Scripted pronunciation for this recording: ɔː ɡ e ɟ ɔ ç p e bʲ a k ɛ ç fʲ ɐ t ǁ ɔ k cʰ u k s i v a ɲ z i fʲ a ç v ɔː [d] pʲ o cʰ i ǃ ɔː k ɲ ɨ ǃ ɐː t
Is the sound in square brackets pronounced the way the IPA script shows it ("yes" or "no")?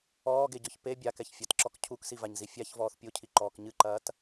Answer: no